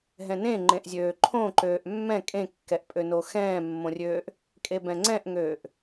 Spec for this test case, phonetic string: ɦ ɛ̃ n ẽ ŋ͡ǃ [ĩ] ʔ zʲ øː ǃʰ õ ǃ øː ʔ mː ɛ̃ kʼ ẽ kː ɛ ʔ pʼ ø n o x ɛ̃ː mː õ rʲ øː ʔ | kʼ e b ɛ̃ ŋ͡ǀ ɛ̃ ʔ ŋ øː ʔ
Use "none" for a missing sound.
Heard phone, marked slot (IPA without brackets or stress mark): ẽ